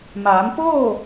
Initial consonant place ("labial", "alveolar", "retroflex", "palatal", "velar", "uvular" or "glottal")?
labial